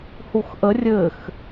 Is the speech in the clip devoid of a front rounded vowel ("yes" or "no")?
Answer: yes